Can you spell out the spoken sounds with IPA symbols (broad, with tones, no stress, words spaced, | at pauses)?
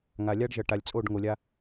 ŋa˨lʲa˦ɖʒʌ˨ ʈa˨lʲt͡sʼo˦˨ɖŋo˨lʲa˦